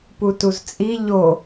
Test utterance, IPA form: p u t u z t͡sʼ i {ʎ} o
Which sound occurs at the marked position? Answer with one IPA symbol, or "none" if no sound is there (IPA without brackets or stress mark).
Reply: ʎ